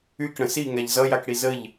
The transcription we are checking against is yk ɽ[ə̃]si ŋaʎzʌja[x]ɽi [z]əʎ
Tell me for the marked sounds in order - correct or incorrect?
correct, incorrect, correct

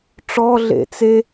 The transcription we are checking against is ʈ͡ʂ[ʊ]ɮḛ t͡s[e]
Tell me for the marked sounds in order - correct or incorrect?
incorrect, correct

